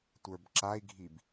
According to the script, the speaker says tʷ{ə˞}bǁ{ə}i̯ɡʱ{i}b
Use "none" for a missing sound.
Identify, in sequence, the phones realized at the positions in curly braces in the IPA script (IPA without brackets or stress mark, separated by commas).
ə˞, a, i